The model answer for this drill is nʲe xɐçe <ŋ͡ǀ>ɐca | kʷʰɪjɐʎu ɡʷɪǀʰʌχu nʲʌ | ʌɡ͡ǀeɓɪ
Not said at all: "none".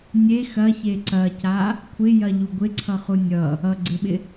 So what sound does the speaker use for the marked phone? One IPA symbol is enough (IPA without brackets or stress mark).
ǀ